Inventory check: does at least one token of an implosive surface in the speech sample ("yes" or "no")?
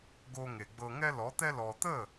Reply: no